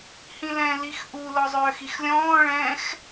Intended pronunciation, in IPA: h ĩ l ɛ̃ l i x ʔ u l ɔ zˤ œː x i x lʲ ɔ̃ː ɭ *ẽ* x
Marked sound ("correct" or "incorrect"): incorrect